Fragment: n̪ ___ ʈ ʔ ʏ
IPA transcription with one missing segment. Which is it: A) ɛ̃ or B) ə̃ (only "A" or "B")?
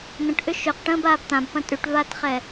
B